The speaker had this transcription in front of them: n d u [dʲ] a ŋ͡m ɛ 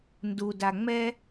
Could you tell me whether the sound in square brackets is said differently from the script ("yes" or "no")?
yes